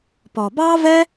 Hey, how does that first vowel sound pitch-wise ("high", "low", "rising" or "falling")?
low